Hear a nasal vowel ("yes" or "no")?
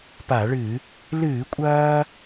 no